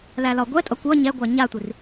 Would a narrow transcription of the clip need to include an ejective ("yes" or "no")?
yes